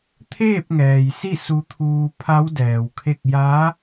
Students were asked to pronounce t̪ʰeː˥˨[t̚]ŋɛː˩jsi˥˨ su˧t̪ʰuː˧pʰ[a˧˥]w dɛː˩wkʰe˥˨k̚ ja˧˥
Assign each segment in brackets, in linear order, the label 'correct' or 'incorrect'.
incorrect, correct

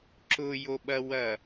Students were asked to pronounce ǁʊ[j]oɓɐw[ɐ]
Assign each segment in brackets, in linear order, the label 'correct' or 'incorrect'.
correct, correct

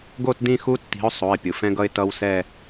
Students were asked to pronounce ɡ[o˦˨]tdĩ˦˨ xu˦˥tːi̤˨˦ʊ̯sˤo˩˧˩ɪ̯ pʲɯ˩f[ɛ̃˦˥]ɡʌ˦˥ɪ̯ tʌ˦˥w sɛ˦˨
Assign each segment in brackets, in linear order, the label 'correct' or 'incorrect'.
correct, correct

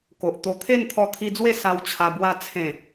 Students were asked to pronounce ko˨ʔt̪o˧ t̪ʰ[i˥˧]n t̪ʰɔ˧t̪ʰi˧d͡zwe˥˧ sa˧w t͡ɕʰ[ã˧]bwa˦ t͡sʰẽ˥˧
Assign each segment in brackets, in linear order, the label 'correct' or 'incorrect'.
incorrect, incorrect

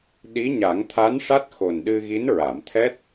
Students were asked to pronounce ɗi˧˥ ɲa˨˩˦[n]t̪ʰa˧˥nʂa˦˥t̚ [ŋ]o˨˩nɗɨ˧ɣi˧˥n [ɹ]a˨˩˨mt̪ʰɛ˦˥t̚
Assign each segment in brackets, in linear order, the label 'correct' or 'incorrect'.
incorrect, incorrect, correct

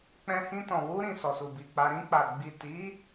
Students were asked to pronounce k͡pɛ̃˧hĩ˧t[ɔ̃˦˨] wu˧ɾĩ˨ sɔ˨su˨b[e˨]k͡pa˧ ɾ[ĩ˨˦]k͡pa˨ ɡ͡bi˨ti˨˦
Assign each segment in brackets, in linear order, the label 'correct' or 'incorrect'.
incorrect, incorrect, incorrect

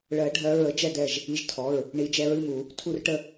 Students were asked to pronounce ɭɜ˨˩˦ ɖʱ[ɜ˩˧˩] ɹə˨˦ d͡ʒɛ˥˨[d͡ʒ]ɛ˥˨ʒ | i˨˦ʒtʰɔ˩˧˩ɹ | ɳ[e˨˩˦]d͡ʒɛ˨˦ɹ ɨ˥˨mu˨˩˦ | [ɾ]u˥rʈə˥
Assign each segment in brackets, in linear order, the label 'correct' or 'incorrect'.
incorrect, incorrect, incorrect, incorrect

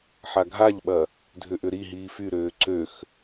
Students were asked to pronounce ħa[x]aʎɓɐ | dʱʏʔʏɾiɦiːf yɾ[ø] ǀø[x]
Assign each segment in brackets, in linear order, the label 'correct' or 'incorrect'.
incorrect, incorrect, correct

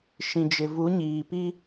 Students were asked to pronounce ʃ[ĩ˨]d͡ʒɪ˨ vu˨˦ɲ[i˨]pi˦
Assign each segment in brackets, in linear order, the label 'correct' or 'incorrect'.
correct, incorrect

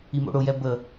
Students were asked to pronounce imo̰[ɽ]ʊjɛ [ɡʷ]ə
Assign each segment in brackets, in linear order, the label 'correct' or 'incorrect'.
correct, incorrect

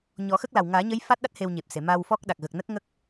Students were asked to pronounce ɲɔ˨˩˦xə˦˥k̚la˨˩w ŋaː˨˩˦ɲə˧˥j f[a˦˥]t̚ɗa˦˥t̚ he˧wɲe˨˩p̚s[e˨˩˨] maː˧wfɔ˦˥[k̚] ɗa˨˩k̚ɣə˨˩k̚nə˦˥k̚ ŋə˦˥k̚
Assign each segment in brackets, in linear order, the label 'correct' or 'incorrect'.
correct, correct, correct

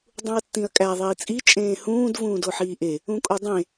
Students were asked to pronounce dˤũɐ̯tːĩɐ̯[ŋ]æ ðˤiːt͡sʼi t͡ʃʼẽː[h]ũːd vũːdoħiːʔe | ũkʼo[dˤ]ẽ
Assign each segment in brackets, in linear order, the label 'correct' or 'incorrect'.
incorrect, correct, correct

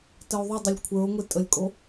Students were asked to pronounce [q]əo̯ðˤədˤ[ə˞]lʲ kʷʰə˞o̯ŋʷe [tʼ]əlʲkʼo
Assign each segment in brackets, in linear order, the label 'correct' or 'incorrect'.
incorrect, incorrect, correct

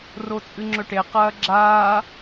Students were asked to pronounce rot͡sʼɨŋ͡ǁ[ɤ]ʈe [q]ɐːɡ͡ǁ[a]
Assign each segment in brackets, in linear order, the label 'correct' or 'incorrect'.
incorrect, correct, incorrect

